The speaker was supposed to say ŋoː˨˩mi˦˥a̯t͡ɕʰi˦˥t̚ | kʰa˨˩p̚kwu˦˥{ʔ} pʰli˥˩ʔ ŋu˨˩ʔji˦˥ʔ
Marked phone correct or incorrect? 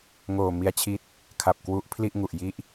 correct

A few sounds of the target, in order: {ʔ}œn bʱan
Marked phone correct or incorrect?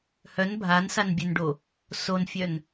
incorrect: h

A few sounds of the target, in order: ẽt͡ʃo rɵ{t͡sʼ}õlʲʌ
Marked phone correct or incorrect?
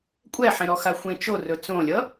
incorrect: t͡s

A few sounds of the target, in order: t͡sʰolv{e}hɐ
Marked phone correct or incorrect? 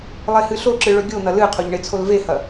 correct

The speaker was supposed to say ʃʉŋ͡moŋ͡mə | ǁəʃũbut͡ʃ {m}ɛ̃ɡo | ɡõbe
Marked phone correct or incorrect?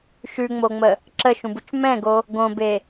correct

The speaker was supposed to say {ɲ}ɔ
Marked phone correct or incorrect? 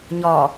correct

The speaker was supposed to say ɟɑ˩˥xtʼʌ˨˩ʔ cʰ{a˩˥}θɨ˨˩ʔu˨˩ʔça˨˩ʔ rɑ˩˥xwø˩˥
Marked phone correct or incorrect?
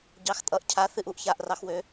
correct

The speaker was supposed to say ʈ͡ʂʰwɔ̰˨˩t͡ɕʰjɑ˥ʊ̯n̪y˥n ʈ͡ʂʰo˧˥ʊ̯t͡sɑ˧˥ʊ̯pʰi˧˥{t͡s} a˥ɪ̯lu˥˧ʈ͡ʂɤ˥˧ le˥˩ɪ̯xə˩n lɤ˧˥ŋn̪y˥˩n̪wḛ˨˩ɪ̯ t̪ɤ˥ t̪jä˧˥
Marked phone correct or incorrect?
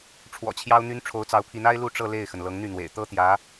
incorrect: n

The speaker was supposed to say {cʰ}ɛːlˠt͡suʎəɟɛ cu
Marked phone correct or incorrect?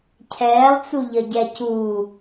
correct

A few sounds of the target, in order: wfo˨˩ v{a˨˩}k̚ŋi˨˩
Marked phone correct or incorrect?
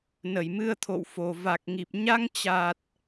correct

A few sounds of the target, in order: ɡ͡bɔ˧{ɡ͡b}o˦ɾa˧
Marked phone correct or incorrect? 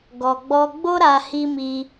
correct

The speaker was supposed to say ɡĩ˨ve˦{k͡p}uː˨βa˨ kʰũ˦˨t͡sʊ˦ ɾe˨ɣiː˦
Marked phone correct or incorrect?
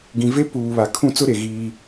incorrect: p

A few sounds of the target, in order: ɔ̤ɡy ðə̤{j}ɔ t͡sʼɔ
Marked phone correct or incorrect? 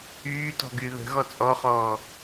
incorrect: ɣ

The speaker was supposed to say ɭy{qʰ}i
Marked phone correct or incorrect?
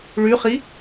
incorrect: χ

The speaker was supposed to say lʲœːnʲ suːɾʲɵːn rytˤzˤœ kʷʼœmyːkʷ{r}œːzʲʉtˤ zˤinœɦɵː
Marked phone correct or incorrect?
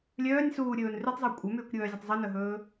incorrect: ɾʲ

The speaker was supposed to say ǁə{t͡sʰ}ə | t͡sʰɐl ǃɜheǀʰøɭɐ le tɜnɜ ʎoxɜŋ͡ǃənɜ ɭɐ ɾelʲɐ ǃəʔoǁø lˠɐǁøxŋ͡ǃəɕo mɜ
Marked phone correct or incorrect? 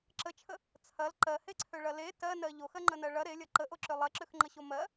incorrect: t͡ʃʰ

